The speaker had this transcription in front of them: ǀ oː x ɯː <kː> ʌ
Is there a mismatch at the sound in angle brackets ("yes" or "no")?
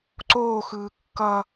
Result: no